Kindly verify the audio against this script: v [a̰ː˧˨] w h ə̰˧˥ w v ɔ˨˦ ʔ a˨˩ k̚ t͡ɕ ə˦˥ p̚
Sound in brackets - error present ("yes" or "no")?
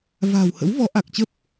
yes